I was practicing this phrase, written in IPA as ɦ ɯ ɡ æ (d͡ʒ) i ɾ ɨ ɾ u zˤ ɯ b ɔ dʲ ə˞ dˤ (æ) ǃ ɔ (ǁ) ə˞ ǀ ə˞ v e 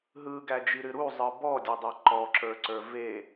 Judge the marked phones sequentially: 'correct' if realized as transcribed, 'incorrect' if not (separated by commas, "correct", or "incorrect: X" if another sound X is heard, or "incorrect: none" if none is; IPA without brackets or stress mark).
correct, correct, correct